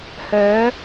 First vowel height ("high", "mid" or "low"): mid